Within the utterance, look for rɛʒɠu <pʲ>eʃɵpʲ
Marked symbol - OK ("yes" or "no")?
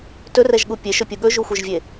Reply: yes